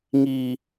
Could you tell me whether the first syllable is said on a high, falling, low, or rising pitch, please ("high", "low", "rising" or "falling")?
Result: high